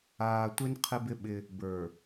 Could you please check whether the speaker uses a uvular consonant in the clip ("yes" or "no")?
yes